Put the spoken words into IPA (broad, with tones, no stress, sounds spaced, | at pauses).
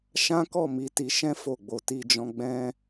ʃ ã˦ k ɔ˦˨ m i˨˦ t i˧ ʃ ɛ̃˦ f o˦˨ ɡ͡b o˧ t i˦ d͡ʒ ɔ̃˦ ɡ͡b ɛ̃˦